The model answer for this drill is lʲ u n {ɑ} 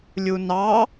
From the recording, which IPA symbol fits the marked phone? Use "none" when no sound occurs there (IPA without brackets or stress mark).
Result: ɑ